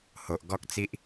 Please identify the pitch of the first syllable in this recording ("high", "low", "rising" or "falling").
low